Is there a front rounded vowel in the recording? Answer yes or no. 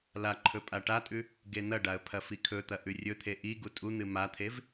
no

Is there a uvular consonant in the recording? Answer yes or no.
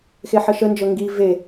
no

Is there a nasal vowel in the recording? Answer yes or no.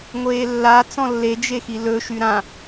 yes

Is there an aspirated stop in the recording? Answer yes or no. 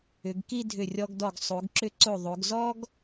no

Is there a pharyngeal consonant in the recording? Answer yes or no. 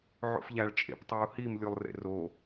yes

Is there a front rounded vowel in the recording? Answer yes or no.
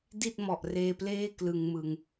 no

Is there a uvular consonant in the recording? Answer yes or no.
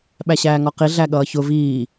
yes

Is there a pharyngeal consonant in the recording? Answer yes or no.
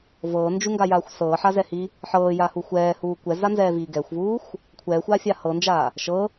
yes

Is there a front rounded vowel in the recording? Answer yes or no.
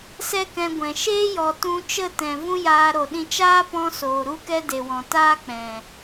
no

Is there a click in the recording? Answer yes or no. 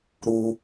no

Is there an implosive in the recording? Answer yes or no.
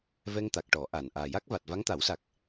no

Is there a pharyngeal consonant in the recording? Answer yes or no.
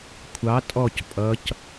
no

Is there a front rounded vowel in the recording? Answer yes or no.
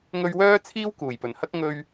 yes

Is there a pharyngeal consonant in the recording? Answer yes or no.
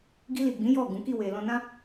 no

